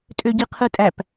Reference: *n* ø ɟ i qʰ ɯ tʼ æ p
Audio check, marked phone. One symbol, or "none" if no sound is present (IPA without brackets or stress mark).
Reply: tʼ